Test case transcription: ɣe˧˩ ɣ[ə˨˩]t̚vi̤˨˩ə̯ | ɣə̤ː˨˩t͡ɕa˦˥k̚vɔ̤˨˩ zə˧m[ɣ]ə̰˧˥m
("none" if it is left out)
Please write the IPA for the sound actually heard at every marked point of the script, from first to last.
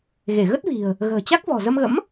ə˦˥, ɣ

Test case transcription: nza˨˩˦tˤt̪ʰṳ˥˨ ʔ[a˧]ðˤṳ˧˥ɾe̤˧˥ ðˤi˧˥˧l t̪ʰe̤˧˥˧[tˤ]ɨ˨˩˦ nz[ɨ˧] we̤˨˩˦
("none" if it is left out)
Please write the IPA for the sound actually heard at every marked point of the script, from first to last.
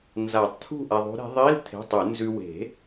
a˧, tˤ, ʉ˧

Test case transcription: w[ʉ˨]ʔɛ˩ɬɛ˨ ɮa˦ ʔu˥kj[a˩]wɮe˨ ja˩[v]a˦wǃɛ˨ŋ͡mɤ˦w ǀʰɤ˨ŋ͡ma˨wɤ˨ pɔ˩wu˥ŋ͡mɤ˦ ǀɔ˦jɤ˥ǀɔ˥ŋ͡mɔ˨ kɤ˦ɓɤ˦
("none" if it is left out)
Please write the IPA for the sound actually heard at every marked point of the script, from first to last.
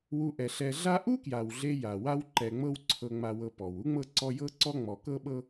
u˨, a˩, w

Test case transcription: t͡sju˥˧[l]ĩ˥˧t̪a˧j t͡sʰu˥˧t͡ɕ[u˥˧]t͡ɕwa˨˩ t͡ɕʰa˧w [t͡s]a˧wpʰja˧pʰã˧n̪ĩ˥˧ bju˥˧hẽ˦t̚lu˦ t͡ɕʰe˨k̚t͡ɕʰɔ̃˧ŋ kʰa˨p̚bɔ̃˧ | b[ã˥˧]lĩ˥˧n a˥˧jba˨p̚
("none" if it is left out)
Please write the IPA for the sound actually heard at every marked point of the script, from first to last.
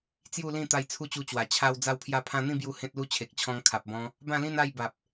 l, u˧, d͡z, ã˥˧

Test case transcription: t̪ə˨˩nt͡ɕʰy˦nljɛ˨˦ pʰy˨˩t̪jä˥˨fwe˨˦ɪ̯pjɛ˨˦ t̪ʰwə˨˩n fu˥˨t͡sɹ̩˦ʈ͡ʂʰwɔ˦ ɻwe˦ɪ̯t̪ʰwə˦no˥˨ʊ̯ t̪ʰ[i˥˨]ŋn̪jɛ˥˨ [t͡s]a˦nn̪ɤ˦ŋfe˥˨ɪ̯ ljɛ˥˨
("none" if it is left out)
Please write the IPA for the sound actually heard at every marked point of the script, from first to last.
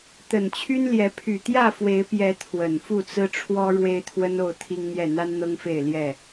i˦, n̪

